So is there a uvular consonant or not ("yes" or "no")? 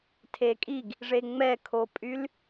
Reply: no